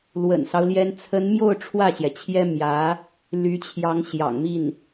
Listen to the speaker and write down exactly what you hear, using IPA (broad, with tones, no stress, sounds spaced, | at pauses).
l w ə̰˨˩ n s ɑ˦ ʊ̯ l j ɛ˥ n t͡sʰ ə˧˥ n m j o˥˧ ʊ̯ ʈ͡ʂʰ w ä˥˩ ɕ j ɛ˩ t͡ɕʰ j ɛ˥ m j ä˧˥ | l y˧˥ t͡ɕʰ j ɑ˧˥ ŋ ɕ j ɑ̰˨˩ ŋ m i˥˩ n